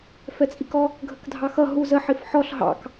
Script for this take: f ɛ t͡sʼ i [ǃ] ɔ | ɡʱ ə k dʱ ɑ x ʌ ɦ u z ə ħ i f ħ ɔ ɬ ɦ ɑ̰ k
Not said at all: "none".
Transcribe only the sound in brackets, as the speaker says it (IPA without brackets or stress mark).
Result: k